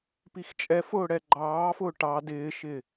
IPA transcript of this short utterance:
p i x t͡ʃʼ ɛ f ʊː ɽ ɛ ɡ͡ǃ ɑː f ʊː ʈ ɑ d ɪː ʃ ɪ

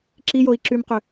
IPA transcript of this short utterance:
ǁ i j o i̯ ǁ y m q ʏ

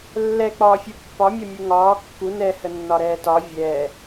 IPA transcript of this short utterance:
lː ɛ k͡p ɒː fʲ u pː ɒ mʲ ɒ mʲ u ŋ ɒː kː u n ɛ h ə nː ɒ ɾ ɛː t ɒ vʲ ɛː

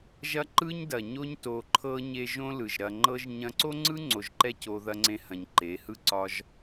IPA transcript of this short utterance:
ʒ ɐ˦ ǃ ɯ˦ ɲ d ɐ˨ ɲ o˦ ɲ t o˧ ǃʰ ɤ˧ ɲ e˧ ʒ õ˦ l ɯ˨ ʒ ɾ ɐ˧ ŋ͡ǃ ɤ˧ ʒ ɲ ɐ̃˧ ǀ o˦ ŋ͡ǀ ɯ˦ ŋ͡ǀ o˧ ʒ ǃ ɛ˦ c o˧ ð ɐ˦ ŋ͡ǀ ẽ˦ h ɐ̃˧ ɲ ǃ e˨˦ h ɯ˦ ǀ ɒ˦ ʒ

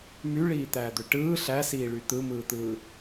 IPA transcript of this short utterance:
m y ɭ iː t̪ æː d̪ ø ʈ ɯː ɬ æ s iː ɭ y t̪ ɯ m ɯː t̪ ɯː

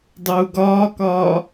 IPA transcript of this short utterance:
dˤ uː ɡ ɒː k ɒː

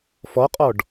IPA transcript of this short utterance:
f ɔ qʼ ɔ ɖ

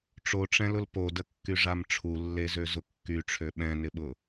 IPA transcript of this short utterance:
ʈ͡ʂ o ʈ͡ʂ ɛ̃ l ʊ l p o d ə kː y ʐ a m ʈ͡ʂʰ u lː e z ø z ʊ kː y ʈ͡ʂʰ ø ɓ ɛ̃ n ɪ ɓ ʊ

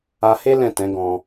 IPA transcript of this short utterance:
a˧ h e˦ l ɛ̃˦˨ t ɛ̃˨˦ ɡ ɔ̃˧

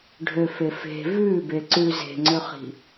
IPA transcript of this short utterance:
ɖʱ ø f e f e̤ v ʉ b e ǀ ʉ z e̤ ŋ͡ǀ ø χ i̤

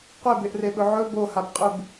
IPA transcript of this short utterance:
qʷ e b e ʔ r e ɓ ɵ ʕ ɵ b o h a b qʼ ʉ b

